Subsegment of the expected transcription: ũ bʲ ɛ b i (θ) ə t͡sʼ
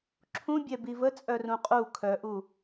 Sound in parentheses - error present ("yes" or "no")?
yes